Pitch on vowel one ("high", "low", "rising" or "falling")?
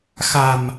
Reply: low